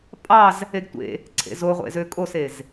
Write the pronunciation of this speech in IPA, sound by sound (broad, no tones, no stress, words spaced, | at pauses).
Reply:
pʼɑz | eɡtʷḛ | ǀʰḛzoʁʷḛzø kʼosez